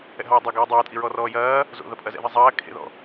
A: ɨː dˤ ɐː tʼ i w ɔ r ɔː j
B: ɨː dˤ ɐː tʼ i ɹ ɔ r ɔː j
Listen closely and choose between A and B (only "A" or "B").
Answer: B